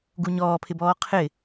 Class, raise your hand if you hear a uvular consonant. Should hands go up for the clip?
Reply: yes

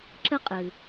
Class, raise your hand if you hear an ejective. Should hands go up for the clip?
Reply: yes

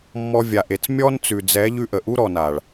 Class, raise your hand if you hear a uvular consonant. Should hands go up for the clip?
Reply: no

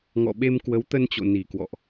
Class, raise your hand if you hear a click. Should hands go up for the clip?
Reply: no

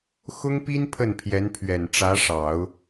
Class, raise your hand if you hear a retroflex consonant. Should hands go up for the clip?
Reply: yes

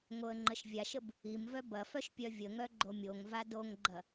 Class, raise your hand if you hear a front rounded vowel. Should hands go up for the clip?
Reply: yes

